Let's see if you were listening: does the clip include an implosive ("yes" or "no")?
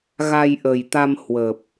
no